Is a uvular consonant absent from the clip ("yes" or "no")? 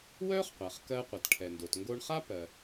no